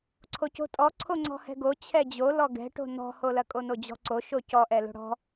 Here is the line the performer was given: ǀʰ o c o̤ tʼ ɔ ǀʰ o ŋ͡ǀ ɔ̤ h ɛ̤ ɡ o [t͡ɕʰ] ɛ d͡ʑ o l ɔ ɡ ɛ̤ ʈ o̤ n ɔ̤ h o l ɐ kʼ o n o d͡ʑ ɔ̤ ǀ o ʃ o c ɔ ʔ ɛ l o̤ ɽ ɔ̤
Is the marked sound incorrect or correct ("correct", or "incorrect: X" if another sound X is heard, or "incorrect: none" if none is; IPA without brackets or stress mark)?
correct